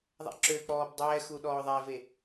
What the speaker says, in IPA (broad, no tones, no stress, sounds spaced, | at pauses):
ðˤ a̰ ǁ ø k͡p ɔː b dˤ ɛː x u ɗ ɔː ðˤ ɛ v e